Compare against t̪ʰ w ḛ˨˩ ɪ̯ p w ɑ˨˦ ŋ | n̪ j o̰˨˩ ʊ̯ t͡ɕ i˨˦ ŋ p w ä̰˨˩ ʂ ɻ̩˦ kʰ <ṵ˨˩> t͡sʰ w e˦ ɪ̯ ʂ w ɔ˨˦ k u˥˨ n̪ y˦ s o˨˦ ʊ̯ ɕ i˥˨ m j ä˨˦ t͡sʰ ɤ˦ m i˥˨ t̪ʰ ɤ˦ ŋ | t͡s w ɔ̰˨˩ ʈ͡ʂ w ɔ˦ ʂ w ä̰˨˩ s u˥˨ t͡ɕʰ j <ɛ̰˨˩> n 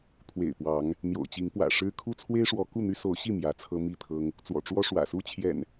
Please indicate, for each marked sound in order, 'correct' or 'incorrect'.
incorrect: u˦, correct

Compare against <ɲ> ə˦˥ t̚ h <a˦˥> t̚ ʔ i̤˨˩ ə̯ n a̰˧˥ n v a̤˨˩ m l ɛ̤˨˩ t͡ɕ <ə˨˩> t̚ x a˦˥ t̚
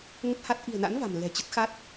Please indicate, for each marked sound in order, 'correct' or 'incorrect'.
incorrect: ŋ, correct, incorrect: ə˦˥

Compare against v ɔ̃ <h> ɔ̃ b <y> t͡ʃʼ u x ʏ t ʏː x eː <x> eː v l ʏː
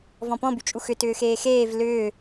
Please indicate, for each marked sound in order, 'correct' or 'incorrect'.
incorrect: p, correct, correct

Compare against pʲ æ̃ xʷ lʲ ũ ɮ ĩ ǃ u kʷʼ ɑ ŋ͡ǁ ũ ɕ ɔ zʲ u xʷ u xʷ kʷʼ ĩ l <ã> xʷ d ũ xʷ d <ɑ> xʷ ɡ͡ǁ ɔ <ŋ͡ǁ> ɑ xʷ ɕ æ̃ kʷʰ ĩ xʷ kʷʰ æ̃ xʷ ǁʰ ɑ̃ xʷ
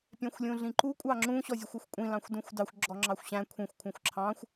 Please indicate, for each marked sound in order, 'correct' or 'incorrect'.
incorrect: ɑ̃, correct, correct

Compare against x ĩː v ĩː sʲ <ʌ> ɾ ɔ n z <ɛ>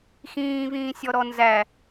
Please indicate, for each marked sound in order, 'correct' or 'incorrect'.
incorrect: ɔ, incorrect: æ

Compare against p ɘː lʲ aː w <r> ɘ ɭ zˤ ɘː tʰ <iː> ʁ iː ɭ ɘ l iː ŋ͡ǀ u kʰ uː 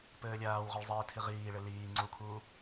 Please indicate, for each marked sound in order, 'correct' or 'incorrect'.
incorrect: ʁ, incorrect: i

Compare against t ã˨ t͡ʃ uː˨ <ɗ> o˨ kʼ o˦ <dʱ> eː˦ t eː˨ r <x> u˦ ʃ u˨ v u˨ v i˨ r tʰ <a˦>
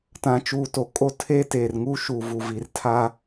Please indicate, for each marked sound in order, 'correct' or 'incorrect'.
incorrect: t, incorrect: tʰ, incorrect: ŋ, correct

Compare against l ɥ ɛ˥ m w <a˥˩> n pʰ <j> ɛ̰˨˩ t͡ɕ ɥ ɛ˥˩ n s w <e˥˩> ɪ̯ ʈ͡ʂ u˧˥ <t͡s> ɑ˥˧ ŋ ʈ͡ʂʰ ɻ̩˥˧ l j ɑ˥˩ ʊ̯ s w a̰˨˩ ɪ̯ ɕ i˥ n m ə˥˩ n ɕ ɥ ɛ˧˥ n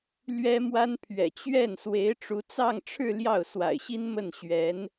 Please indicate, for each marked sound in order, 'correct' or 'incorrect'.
incorrect: a˥, incorrect: ɥ, incorrect: e˧˥, correct

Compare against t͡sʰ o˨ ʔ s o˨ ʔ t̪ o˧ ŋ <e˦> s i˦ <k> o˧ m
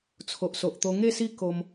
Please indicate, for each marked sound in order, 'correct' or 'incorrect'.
incorrect: e˥˧, correct

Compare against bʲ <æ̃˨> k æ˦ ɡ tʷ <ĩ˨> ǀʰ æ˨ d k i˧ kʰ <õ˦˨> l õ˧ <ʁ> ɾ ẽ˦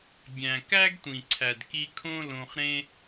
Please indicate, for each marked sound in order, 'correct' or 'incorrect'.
correct, correct, incorrect: õ˦, incorrect: χ

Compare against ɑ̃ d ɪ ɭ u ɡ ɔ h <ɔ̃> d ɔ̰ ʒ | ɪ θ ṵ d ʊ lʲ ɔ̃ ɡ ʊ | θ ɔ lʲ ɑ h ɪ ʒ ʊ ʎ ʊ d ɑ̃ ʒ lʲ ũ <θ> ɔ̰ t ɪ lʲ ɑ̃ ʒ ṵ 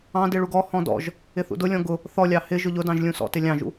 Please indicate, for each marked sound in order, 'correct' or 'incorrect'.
correct, incorrect: s

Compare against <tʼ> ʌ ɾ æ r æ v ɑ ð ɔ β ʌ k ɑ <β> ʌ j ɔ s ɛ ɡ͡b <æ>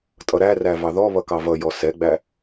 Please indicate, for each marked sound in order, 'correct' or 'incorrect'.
correct, incorrect: v, correct

